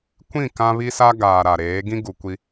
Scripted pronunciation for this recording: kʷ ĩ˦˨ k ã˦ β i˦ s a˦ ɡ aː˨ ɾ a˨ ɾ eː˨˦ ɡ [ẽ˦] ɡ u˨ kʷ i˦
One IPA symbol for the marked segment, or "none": ĩ˦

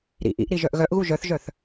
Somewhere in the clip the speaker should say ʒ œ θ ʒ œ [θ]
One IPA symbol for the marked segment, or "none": θ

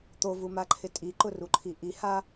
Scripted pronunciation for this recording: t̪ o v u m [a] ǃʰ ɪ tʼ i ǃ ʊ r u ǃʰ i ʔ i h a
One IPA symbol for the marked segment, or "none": a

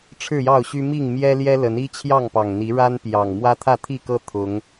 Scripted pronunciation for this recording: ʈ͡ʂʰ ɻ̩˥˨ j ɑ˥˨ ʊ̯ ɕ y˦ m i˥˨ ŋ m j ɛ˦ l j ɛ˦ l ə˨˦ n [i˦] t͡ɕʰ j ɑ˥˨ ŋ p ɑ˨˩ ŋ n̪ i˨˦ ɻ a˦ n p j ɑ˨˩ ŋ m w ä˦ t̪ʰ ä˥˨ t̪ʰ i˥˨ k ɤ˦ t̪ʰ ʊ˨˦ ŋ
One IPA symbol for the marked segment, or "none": i˦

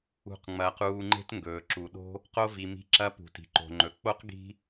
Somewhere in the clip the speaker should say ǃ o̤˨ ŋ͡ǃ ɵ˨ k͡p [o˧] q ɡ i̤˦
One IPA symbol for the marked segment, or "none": o˦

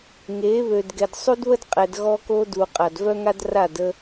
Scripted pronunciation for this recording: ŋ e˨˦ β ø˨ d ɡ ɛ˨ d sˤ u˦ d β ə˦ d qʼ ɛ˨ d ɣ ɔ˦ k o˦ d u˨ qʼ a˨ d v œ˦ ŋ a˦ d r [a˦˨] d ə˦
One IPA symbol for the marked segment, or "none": a˦˨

